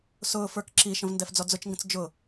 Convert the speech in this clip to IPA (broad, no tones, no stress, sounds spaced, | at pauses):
s ʊː f ə˞ k ǁ i ʃ ə̃ v n d ɛ f d͡z ɔ d͡z ʊ t͡ʃ ŋ ɡ ə̃ t͡s d͡ʒ ʊ